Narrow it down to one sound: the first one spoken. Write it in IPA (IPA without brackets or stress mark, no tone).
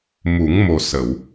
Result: m